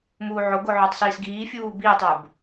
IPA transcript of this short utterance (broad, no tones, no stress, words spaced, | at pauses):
muːʕoɡo ʕə˞tˤsiːsɡiː fʲuːbiːtˤə˞b